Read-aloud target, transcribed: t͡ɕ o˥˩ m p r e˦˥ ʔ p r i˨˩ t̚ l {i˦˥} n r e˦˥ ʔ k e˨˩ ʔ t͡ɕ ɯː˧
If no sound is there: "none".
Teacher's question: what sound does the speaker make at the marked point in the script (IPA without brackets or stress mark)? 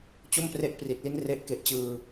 i˦˥